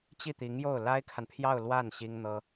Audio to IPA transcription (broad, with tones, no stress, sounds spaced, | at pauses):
t͡ɕ i˥˩ t̪ i˧˥ ŋ j o˥˩ ʊ̯ l a˥ ɪ̯ kʰ a˨ n pʰ j ɑ˥˧ ʊ̯ l w a˥˩ n ɕ i˥ ŋ n̪ ɤ˥